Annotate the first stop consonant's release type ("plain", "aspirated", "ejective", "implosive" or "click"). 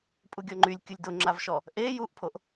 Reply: ejective